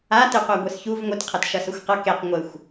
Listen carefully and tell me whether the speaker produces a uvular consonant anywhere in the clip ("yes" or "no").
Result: yes